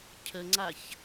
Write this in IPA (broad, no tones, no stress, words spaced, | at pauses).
cʰəŋ͡ǀaç